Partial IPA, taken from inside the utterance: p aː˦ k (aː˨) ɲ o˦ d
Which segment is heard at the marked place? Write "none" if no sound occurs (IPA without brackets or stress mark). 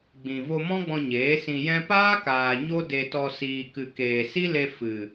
aː˨